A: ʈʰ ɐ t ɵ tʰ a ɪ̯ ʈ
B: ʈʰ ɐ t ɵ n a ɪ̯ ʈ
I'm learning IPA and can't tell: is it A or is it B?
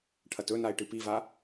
B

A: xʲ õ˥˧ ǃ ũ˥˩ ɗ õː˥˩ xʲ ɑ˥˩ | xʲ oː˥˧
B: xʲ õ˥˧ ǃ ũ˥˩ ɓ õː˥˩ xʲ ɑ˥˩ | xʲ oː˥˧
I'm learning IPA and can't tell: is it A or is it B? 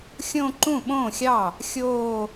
B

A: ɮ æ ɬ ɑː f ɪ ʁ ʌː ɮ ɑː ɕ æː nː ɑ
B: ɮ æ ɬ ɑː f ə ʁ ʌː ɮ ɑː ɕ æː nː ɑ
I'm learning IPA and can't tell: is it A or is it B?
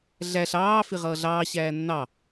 A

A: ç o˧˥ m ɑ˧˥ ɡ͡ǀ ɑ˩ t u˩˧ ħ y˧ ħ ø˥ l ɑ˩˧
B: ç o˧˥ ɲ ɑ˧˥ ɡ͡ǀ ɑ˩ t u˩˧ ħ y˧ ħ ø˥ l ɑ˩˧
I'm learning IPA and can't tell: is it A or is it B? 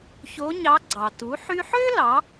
B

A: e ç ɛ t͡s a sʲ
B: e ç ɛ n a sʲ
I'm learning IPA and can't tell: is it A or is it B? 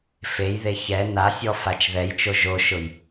B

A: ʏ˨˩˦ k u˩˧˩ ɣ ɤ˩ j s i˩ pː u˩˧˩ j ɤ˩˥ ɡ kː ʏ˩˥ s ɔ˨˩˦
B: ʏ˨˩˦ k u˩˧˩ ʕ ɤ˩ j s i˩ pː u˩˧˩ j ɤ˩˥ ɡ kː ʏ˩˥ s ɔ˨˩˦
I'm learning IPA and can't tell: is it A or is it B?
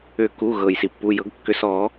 A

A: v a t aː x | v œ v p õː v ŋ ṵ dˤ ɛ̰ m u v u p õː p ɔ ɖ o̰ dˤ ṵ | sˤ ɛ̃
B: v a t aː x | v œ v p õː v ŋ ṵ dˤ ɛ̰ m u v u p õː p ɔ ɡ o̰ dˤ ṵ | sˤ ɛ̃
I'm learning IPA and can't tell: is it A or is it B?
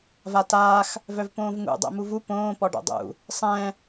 A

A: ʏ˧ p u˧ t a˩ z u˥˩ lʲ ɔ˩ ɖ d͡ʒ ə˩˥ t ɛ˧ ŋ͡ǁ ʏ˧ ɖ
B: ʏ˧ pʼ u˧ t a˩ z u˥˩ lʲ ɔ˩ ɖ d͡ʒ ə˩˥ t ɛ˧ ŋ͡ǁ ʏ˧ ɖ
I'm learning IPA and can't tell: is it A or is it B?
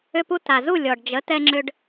A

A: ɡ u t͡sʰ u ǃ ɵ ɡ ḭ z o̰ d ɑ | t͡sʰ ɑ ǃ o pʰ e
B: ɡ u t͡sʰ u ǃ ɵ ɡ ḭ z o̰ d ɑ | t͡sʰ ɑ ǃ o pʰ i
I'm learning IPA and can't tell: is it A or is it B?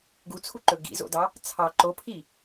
B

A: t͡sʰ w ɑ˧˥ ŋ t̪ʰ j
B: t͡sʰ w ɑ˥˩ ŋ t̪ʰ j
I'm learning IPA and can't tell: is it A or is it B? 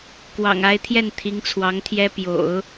A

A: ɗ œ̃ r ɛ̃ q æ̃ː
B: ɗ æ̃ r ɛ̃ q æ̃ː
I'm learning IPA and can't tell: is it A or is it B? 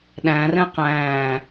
B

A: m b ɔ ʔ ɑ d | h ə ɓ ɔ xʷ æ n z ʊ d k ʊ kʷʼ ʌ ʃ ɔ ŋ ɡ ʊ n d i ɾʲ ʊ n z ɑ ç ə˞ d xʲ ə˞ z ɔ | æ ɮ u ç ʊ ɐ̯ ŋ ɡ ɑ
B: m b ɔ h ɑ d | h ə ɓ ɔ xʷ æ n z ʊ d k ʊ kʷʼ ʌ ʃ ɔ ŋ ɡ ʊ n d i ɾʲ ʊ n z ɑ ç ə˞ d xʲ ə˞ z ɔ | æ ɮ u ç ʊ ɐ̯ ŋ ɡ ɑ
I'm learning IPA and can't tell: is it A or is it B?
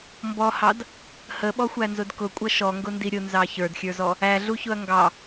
B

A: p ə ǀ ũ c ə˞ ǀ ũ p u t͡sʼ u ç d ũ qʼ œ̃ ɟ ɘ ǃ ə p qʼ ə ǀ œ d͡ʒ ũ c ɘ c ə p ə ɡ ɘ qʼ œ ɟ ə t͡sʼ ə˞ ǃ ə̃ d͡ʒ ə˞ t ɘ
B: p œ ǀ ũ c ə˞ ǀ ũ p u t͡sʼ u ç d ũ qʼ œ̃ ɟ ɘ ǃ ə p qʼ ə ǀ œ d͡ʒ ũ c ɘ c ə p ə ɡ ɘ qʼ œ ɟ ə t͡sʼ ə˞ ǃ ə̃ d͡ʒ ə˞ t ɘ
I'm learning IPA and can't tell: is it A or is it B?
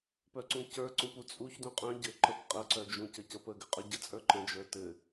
B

